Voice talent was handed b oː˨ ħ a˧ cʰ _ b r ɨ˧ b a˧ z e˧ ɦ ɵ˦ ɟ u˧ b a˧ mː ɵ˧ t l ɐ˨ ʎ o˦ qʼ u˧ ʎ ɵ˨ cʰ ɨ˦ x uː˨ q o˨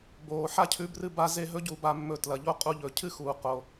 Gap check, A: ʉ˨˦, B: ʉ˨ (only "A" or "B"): A